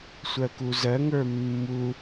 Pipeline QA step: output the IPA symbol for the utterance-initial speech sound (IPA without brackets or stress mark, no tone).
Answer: sʷ